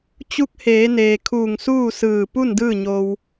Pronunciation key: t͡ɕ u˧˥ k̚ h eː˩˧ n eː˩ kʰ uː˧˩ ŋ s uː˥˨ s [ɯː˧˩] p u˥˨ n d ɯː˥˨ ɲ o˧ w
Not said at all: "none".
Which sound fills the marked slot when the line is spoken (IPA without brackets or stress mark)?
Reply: ɯː˧˩